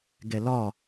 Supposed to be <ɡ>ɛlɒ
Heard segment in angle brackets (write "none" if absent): ɡ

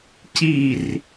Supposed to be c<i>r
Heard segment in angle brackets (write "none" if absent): i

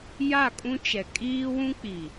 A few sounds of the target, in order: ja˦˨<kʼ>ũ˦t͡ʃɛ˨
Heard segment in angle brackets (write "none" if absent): kʼ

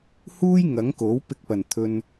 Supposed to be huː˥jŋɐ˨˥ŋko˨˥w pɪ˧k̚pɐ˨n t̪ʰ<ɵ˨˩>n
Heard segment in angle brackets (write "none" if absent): ɵ˧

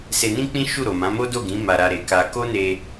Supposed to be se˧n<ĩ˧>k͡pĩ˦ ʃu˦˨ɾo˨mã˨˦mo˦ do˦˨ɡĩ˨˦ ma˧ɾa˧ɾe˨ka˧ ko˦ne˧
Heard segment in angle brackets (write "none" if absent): ĩ˦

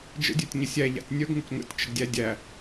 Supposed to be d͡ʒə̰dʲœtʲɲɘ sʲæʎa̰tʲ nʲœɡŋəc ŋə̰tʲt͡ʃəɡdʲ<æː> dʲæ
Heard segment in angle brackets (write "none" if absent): æ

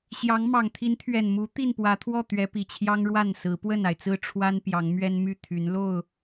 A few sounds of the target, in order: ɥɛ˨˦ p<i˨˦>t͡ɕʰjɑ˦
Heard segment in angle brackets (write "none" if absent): i˨˩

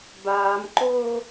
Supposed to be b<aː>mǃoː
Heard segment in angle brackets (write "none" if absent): aː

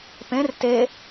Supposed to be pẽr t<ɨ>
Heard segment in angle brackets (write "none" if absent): e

